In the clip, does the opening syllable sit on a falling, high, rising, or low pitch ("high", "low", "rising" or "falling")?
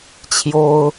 high